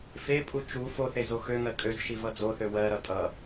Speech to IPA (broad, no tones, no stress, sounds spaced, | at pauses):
f e pʼ u t͡ʃ u f o θ e z o x ø ŋ ɜ kʼ ø z ʃ i v ʌ d͡z o θ ø w ɜ ɾ ʌ tʼ ʌ